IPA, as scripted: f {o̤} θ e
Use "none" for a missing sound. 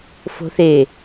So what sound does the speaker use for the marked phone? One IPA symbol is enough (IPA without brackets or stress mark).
o̤